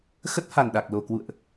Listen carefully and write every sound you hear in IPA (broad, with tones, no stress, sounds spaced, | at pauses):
x ə˦˥ t̚ h a˨˩ n ɗ a˨˩ k̚ l o˨˩ k w ṵ˧˨ ə̯ ʔ